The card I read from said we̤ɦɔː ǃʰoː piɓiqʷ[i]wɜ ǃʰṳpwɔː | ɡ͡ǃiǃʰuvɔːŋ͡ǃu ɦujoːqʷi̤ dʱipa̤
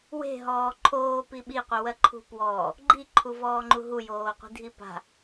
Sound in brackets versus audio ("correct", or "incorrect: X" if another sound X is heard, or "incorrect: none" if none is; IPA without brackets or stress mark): correct